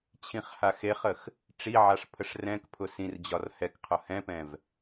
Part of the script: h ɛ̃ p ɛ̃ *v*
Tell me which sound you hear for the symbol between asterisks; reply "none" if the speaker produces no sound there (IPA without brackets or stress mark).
v